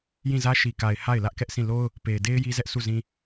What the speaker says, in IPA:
j ĩ˦˨ z ä˦ ʃ i˨ k a˨ ɪ̯ h a˦˨ ɪ̯ l ä˦ ʔ k ɛ˦ ʔ s ĩ˦˨ l o˦ ʊ̯ | p e˨ ɪ̯ d e˦ ɪ̯ j i˦ z ɛ˦ ʔ sʰ u˦˨ z ĩ˦

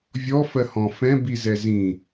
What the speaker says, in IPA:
vʲ ɔ f ɜ h ɔ̃ f ɛ̃ b i z ɛ z ĩ

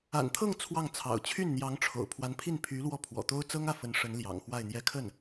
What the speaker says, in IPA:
a̰˨˩ n t̪ʰ ɤ˥˧ ŋ t͡sʰ w ɑ˥˩ ŋ t͡sʰ ɑ̰˨˩ ʊ̯ t͡ɕʰ y˥˩ n n̪ j ɑ˧˥ ŋ ʈ͡ʂʰ o̰˨˩ ʊ̯ pʰ w a˧˥ n pʰ i˥˩ n pʰ y˧˥ l w ɔ˥˩ pʰ w ɔ̰˨˩ t̪ o˥ ʊ̯ t͡s ɤ˥ ŋ ä˥˩ f ə˧˥ n ʂ ə˧˥ n l j ɑ̰˨˩ ŋ x w a˥˧ ɪ̯ n̪ j ɛ˥˧ kʰ ə˥˩ n

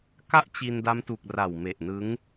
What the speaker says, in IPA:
k a˥˩ ʔ t͡ɕ i˧ n d a˦˥ m t u˨˩ k̚ r a˨˩ w m e˨˩ ʔ n ɯ˦˥ ŋ

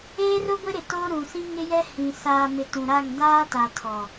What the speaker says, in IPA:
eː˦ r ʊ˦ ɡʷ ɪ˦ ɾ ɪ˨ t o˦ ɾ ũ˨ s ĩ˦ ŋ ɪ˦ j ɛ˦ h ĩ˨ s aː˨ m ɪ˨ t ũ˨ ɾ a˦˨ ŋ d aː˦ t a˨ tʰ ɔ˨

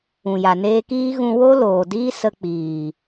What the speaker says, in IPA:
ũ˨ j a˨ n eː˦ k iː˦ ɣ ũ˧ w o˦ l oː˨ d iː˦ s ə˧ k͡p iː˨

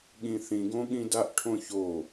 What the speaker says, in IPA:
ɠ ĩ θ ĩ ɡ õ ɠ ĩ d a ʔ ʈʰ õ ç o

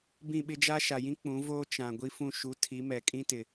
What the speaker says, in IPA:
b ĩ˦˨ ɓ ɪ˦ d͡ʒ a˦ ʃ a˨ j ĩ˦ k͡p ũ˨˦ v oː˦ t͡ʃ ã˨ ɡʷ i˦ f ũ˦˨ ʃ u˨˦ tʰ i˨˦ m ɛ˨ kʼ ĩ˦ t ɪ˨

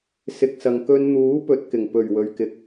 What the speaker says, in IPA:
s ɪ˨ k̚ s ɐ˨ ŋ k ɵ˧ n n̪ uː˨˥ p ɵ˨ t̚ k ɪ˨˩ ŋ p ɵ˨˩ ɥ w ɵ˨ ɥ k ɪ˨˥ k̚

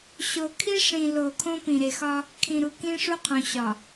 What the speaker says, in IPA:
ɕ o˨ kʰ i˦ ʂ ĩ˨ l o˨ kʰ õ˦ p ĩ˨ ɾ e˨ x ɒ˦ | kʰ ĩ˨ ɾ u˨ k ĩ˦ ʂ u˦ qʰ õ˨ ɕ ɒ˨

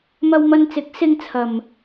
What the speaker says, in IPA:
m ɐ˧ w m ɐ˧ n t͡s ɪ˨˥ k̚ s ɪ˧ ŋ t͡sʰ ɐ˨ m

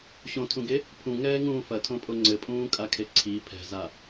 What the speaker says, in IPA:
ɕ õ tʰ ũ ɡ e | pʰ ũ ŋ ɛː ŋ ũː f ɐ tʰ õ pʼ o ŋ͡ǀ ɘ pʼ ũː kʼ a kʰ e ǀʰ i pʰ ɛ̤ z a

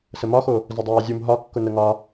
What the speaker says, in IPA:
s ə m ɒ x o | z ə dˤ aː zʲ u m ɦ ɒ kː ʊ n ə ŋ ɒ

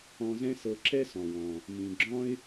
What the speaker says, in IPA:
ɔ̃˧ z ɛ̃˥ s ɤ˧ ǁ ɛ˥ s ɔ̃˩ w ɔ̃˩ | m ĩ˩ ɡ͡ǁ ɔ̃˥ ɪ̯

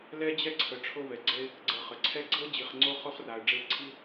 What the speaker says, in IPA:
l ɛ˥ d͡ʑ ɛ˥ ǀʰ ə˨ ʈ͡ʂʰ o˦ v ɛ˩ ɡ͡ǀ ɛ˦ ɪ̯ | ɡ͡ǀ ɤ˨ χ ə˩ ǀʰ ɛ˥ ɡ͡ǀ ɤ˥ d͡ʑ i˨ χ ŋ͡ǀ o˦ χ o˥ χ r a˩ ə̯ ɖ͡ʐ e˦ ǀʰ i˥

